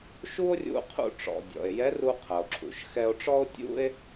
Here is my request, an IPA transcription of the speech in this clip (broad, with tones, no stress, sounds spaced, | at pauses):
ʃ u˥ o̯ rʲ ṵ˧ qʰ ṵ˧ ʈ͡ʂ ɔ̰˩ dʲ ɔ̰˩ e̯ j ɛ˧˥ r u˧ qʰ ɐ˩ o̯ ǁʰ ṵ˩ ʃ x ɛ˧ o̯ ʈ͡ʂ ɔ˥ o̯ tʲ ṵ˥ e̯